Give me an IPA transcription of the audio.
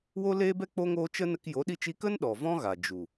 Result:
wo˦leː˦ bɛ˦ k͡po˦ŋoː˦ t͡ʃə˦nə˧k jo˨˦ɗi˧t͡ʃi˧kə˦n ɗɔ˨vɔ̃˦ɣa˨ d͡ʒu˨

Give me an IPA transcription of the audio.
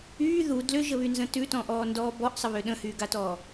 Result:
yː ðu dlʏʒəβynzə̃ tʉtɔ̃ʔɔːndɔː bɔʔsˤəβʏ ɗə̃hyːɡatɔː

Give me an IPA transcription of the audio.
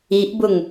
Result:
iʔbʊŋ

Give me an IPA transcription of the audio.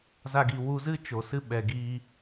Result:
za˧ɡi˨ wu˧zɨ˦ t͡ʃo˨sɨ˦ ɓɛ˨ɡiː˧

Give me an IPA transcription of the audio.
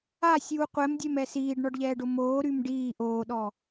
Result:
asʲuː qʷɛmdʲɛmɛ siːɖɳɔɖʎɛːɖo moːɾym ɖiː ʔoːɗɔ

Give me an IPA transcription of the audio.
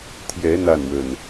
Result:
t̪ʰjɛ˨˦ n̪a˥˨nwə˨˩n

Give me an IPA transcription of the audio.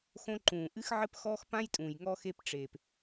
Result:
xõ˧ǃũː˨ ʔɨ˦xʕɘ˦pxɔː˦x pã˦jtʼũː˨j ŋɔ˧xe˧pʈ͡ʂeː˨p

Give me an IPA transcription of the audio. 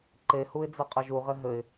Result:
ǃehuɪ̯ d͡zɐqʼɐʒuʁɘ ɦɘɪ̯

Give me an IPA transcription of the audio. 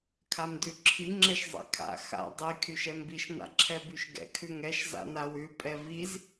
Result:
kʰamdʉǁʰi ŋ͡ǁɛʃzˤɛ̰kʰa̰ xa̰ dˤi kʰyʃɛmbiʃ na̰ǁʰɛbyʃɡɛ̰ kʰʉŋɛʃ za̰nawʉ pʼɛviz

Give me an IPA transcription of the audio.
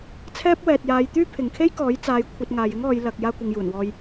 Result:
t͡sʰɛː˥p̚wɛː˨t̚jaː˨˧j t̪yː˥pʰɪ˨ŋkʰe˥jkɔː˨˥j t͡saː˨j kʷʰɐ˧t̚ŋaː˨jɪ˥ŋɔː˨˧j lɐ˨k̚ jaː˧kʷɪ˨ŋjuː˨˩n wɔː˨j

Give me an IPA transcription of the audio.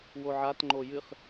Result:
woʕatŋ͡ǃo jɨχ

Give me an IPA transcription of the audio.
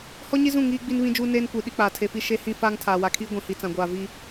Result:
hɔ˦ɲi˦zũ˦˨ ŋiː˦ɡ͡bi˦nβĩ˦d͡ʒuː˦ neː˦nkʷi˨ ɗi˦k͡paː˨tʰe˨fi˦ ʃe˦hĩ˦ faː˦ŋtʰaː˨wa˨kʰiː˦ ɡʷĩ˨hi˨ t͡sã˨ ɡʷaː˨ vi˦

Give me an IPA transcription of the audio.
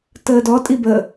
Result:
təːdɔtʼi bə

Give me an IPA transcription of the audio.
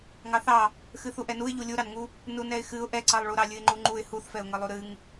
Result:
ŋɑθɑ | xɨθuʔɛnuɪ̯ ʎulʲuɾɑnŋu | nunɛɪ̯xɨʊ̯ ʔɛǀɑlˠɭuɾɑ lʲɨɪ̯ŋ͡ǃuŋ͡ǃuɪ̯ huθfɛʊ̯ŋə lˠuɾɨŋ

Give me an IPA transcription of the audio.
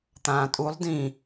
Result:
t̪ãːtʼulˠ dĩ

